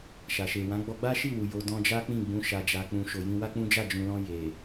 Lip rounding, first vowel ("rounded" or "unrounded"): unrounded